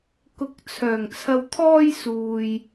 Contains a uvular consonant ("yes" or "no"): no